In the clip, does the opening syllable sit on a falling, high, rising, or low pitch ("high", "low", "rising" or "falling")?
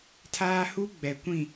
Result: high